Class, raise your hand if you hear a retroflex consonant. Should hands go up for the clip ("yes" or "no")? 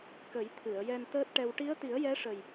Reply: yes